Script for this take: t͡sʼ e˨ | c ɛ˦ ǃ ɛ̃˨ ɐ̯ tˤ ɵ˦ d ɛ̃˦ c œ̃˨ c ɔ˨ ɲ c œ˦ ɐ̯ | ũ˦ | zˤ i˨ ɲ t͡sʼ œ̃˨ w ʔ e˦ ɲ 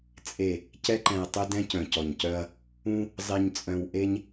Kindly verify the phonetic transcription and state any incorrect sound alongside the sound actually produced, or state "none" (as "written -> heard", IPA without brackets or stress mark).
none